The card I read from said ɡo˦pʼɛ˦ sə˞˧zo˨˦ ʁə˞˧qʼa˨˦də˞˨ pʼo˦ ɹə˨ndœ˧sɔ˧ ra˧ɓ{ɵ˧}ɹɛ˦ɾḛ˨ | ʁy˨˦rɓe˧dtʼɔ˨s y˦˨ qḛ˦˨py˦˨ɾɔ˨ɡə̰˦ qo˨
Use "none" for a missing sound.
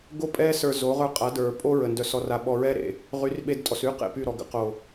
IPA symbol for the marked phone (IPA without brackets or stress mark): ɔ˧